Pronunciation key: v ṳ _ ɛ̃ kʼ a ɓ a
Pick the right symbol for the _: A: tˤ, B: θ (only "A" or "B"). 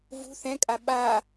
B